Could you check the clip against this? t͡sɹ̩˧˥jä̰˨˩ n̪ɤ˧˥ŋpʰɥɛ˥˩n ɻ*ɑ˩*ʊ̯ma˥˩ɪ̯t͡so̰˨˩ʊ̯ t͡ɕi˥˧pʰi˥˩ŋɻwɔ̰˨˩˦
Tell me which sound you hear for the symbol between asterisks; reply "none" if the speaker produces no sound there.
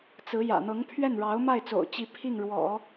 ɑ˧˥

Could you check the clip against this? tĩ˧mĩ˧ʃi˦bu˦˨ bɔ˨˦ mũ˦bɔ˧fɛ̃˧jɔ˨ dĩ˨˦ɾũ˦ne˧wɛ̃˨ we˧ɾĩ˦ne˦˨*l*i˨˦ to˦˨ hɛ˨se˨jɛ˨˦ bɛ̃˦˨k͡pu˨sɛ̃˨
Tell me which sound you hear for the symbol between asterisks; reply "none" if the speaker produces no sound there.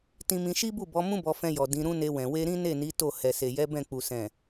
n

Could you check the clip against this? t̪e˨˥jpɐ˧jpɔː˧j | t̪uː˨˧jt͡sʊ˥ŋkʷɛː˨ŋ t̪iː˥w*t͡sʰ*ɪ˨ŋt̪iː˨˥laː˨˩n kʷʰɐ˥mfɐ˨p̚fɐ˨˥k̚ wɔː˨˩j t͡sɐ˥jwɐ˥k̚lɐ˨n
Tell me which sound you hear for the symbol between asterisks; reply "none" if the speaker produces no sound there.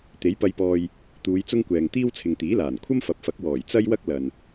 t͡sʰ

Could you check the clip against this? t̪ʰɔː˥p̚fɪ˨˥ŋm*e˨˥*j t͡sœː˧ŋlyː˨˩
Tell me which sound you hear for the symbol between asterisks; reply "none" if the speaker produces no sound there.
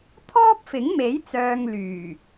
e˨˥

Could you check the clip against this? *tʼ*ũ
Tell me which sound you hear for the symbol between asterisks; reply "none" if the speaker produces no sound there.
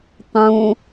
tˤ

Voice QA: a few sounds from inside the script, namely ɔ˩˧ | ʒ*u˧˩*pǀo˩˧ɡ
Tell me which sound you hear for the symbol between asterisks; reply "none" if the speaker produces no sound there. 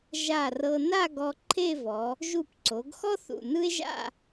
u˧˩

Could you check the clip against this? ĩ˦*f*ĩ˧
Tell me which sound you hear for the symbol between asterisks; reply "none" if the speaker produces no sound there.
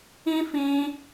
f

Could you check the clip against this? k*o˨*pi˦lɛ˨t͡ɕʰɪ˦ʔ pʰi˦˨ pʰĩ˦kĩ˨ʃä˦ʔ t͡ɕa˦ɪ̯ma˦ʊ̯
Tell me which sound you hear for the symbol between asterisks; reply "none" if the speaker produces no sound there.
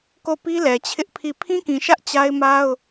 o˦˨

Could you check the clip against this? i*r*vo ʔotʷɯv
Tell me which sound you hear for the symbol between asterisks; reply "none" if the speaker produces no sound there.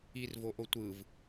r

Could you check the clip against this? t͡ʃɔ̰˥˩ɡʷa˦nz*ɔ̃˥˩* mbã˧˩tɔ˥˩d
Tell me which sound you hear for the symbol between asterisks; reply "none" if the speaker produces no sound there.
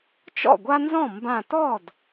ɔ̃˥˩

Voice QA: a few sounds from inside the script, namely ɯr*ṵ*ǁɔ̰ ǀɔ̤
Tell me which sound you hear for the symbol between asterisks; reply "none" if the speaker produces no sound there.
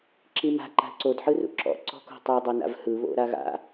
ṵ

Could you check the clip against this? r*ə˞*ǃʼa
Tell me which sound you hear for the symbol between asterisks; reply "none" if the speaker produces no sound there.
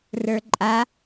ə˞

